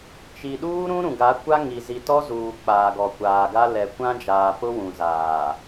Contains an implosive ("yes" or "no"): yes